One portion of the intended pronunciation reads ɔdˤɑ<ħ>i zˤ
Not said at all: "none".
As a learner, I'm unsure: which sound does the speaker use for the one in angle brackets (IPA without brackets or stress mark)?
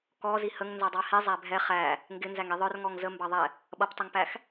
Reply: h